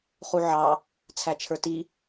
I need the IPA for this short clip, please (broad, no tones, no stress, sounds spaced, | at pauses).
χ u ʕ ɑ | t͡sʰ æ t͡ʃʰ ə˞ t i